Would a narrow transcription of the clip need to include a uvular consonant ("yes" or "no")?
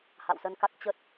no